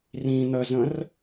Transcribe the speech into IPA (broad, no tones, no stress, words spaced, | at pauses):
rĩ n̪əzə̃r